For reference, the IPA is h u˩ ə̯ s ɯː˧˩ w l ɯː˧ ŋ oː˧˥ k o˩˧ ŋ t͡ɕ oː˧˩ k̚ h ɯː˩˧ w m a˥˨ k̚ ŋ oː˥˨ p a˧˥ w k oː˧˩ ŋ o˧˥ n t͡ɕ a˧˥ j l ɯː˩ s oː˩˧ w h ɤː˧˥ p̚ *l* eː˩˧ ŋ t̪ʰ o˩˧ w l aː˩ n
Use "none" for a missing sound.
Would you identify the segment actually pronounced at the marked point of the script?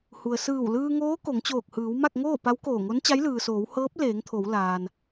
l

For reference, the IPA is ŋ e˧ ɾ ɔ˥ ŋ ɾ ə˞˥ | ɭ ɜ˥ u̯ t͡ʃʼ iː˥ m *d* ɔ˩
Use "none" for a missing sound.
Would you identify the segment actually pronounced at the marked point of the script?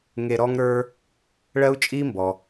b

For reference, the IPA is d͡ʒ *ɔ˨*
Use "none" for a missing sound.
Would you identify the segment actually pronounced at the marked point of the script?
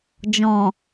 ɔ̃˨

